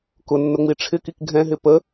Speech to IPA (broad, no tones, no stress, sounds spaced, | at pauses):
k ʊ nː ʊ ŋ͡m i ʈ͡ʂʰ ɪ k i k ɡʱ ɛ̃ ɦ ɪ p ə